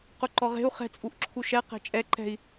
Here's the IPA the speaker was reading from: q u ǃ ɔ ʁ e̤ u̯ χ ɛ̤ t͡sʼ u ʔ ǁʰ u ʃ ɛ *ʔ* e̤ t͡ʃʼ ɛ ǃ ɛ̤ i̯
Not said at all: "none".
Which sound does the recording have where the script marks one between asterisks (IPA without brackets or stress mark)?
q